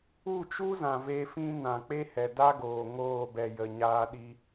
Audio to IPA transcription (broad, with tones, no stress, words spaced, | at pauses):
u˦˨t͡ʃu˦zã˨ ve˧fĩ˦ nã˨k͡pe˦ hɛ˨da˦ɡoː˨ ŋoː˦˨bɛ˨ jə˨ ɲaː˧ɗi˧